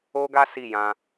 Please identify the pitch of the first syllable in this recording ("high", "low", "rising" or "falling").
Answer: high